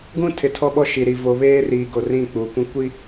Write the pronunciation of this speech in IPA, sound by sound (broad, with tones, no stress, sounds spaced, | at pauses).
ɡ ũ˦ tʰ ɪ˨ tʰ ɔ˦ ɓ ɔ˦ ʃ i˨ ɾ i˨ v o˨ β eː˦ r iː˨ ɡ o˨ r ĩ˦˨ k͡p uː˨ kʷ ĩ˦ kʷ i˦